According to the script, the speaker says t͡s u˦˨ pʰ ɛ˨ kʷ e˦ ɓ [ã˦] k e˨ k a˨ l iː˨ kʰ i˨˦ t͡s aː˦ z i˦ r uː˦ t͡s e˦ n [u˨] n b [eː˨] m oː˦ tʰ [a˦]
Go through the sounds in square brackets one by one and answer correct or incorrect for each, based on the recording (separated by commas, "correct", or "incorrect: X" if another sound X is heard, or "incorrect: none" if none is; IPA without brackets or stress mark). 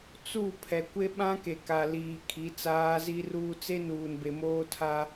correct, incorrect: uː˨, incorrect: e˨, correct